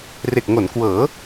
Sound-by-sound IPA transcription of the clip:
r e˨˩ k̚ ŋ o˩˦ n k w ɤː˩˦

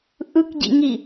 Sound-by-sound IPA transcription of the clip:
ʔ ɯ k ɟ ḭ ŋ i

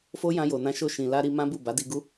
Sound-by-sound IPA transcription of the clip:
f o˦ j ã˧ j o˨ n ã˧ ʃ o˧ ʃ ĩ˨ l a˧ ɾ i˧ m ã˦ b u˦˨ b a˨˦ d i˧ ɡ u˦

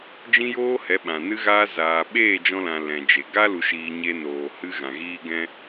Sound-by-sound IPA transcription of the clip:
d͡ʒ ĩ˦ j oː˦ h ɛ˨˦ ɓ ã˨ n ɨ˦ ɣ aː˦ z aː˨ ɓ eː˦˨ d͡ʒ ɔ̃˧ l ã˨ l ɛ̃˨ d͡ʒ e˨ ɡ a˦ l u˨ ʃ iː˨ ɲ e˧ n oː˨ h ɨ˧ ɣ ã˨ ɣ iː˧ ɡ ɛ̃˧

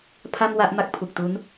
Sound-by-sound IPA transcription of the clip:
pʰ a˥˩ m w a˥˩ ʔ m a˥˩ k̚ pʰ u˨˩ k̚ t u˦˥ n

